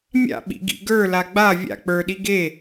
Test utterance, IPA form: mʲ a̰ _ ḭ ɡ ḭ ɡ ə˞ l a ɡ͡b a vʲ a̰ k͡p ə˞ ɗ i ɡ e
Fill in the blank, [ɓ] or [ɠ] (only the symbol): ɓ